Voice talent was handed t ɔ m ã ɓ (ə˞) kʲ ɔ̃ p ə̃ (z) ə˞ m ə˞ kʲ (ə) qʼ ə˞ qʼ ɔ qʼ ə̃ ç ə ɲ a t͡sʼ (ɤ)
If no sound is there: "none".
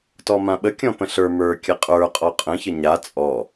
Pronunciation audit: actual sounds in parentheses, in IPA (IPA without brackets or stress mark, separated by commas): ə, ɬ, ə, ɔ